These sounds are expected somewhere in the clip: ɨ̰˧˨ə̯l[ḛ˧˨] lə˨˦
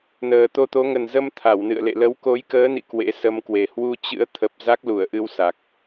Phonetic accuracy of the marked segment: correct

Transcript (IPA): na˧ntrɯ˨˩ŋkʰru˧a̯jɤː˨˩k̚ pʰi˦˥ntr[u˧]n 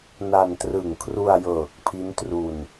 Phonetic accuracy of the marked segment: correct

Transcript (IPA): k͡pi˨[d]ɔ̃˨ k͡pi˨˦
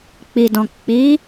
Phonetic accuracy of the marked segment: correct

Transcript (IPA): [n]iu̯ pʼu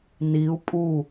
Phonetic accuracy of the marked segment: correct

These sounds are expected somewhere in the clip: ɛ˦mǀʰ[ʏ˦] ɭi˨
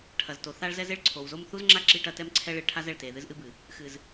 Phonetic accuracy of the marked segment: incorrect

